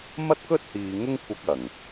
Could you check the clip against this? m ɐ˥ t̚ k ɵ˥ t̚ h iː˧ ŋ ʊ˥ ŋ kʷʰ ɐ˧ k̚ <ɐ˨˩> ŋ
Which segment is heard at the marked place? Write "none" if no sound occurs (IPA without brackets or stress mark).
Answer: ɐ˨˩